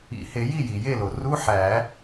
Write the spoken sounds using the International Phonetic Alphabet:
ḭ˨˩˦ h e˨˩˦ j i˥˩ j i˩ j e˥˩ l o˩ r u˧˥˧ ħ æ˨˩˦

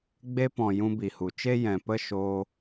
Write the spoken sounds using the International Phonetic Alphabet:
ɡ͡b e˧ p ɔ̃˨ j ũ˧ b i˨ h u˨ t͡ʃ e˦ j ɛ̃˨ p ə˦˨ ʃ oː˧

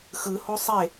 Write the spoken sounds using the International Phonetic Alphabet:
x ɯ h o sˤ e

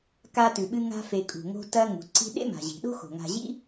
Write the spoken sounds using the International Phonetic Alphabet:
k a˦ t ʉ˩ ɓ ɨ˦ ŋ a̤˦ f e˨ kʼ ṳ˩ ŋ o̤˦ t ɐ˦ ŋ ṳ˩ ǀ i̤˦ ɗ ḛ˥ m a̤˩ ʑ i̤˩ ɗ o̤˥ x o̤˩ ŋ a̤˨ ʑ ḭ˥

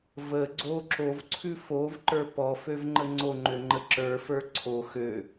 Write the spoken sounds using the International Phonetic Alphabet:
v ə ɡ͡ǀ o ǁ o v ǀʰ ʉ f o v ǃ ə˞ p ɔ f ø v ŋ͡ǃ ə ŋ͡ǀ o ŋ͡ǃ ø ŋ͡ǃ ə ǁ ə˞ f ə˞ ǀʰ o x ø

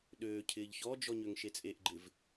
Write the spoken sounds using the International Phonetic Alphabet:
ɗ øː cʰ ɪː ʎ ç ɔ d͡ʒ ɔ ɲ ø ŋ ʃ e t͡sʼ e ʔ ɡ͡ǃ ɪ v

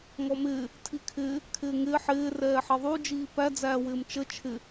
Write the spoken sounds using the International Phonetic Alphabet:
ŋ ɔ m ɪː | tʰ i kʰ ɪː | kʰ ɪː ŋ ɪː ħ ɪː r ɛː ħ ɛ ðˤ u d͡ʒ iː p æ d͡z æː w ɪː m t͡ʃ ə t͡ʃʰ ɪ

